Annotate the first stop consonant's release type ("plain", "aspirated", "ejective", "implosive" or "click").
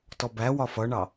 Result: plain